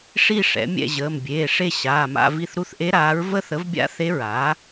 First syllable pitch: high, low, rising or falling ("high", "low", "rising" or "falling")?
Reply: falling